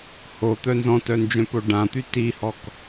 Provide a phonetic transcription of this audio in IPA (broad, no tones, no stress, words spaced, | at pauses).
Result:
hot̪œ nzɔ̃tœnd͡ʒœ̃po ɖãt̪y tihɔk